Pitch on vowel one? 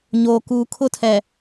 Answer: low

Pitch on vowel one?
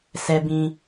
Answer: high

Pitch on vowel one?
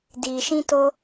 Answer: low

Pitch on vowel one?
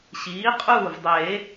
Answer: rising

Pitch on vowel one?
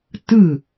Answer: falling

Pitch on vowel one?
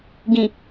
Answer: low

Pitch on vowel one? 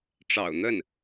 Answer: low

